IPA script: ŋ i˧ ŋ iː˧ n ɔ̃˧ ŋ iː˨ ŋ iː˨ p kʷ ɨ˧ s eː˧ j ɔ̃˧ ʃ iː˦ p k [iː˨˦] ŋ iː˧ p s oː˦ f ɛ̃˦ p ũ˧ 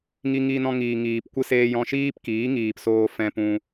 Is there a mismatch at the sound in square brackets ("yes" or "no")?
no